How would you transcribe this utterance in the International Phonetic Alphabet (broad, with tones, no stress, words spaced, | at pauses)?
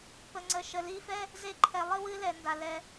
pə˨ŋ͡ǀə˨ʃə˨ li˧fɛ˦ | ze˧ǃʰɛ˨ lˠɨ˦ wɨ˧lɛ˨nda˨ lɛ˧